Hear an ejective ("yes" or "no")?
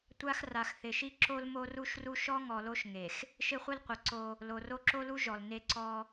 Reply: no